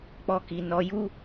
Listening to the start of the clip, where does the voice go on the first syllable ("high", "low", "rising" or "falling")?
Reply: high